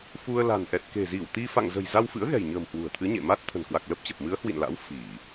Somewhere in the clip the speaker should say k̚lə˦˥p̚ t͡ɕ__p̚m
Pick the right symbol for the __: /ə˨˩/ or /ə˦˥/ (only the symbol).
ə˨˩